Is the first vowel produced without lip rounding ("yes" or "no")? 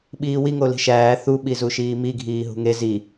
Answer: yes